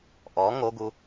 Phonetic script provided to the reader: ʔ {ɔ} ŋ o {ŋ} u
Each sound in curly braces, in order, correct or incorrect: correct, incorrect: ɡ

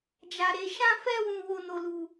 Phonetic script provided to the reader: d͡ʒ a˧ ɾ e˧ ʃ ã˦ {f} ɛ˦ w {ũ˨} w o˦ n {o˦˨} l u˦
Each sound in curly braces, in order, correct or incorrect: correct, incorrect: ũ˦, incorrect: o˦

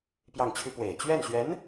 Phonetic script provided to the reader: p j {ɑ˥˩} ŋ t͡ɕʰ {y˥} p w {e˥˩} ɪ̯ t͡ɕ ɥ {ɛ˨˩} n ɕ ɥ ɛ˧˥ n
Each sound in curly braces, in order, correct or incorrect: correct, correct, incorrect: e˨˩, incorrect: ɛ˥˩

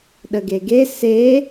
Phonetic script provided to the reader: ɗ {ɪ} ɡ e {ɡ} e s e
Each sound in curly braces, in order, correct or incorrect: incorrect: ə, correct

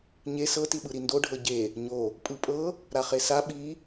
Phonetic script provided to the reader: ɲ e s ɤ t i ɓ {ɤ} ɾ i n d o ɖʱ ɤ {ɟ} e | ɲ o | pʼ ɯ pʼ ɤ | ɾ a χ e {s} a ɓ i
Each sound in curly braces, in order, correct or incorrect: incorrect: ɯ, correct, correct

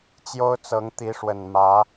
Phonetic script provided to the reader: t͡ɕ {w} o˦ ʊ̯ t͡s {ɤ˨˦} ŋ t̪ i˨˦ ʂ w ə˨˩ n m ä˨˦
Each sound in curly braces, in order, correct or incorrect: incorrect: j, correct

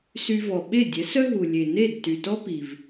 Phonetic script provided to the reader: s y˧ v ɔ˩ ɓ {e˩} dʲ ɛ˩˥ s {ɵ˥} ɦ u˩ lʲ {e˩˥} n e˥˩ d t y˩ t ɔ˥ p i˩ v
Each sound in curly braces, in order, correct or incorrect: incorrect: e˥˩, incorrect: œ˥, incorrect: e˩

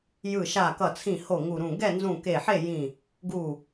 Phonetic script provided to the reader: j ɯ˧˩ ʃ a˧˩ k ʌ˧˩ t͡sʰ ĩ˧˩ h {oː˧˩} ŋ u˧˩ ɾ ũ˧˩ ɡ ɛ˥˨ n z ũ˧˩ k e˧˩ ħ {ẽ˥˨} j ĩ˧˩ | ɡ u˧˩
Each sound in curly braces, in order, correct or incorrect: incorrect: o˧˩, incorrect: e˥˨

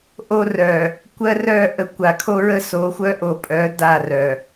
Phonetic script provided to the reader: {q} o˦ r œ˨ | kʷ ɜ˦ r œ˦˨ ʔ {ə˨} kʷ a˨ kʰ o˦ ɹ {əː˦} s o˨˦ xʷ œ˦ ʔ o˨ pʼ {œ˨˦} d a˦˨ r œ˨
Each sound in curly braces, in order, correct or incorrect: incorrect: ʔ, correct, incorrect: ə˦, correct

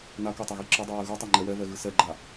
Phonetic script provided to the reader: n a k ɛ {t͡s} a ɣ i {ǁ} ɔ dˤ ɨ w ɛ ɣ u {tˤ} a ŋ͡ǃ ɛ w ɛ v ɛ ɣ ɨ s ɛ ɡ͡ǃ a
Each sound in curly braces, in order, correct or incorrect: incorrect: tˤ, correct, correct

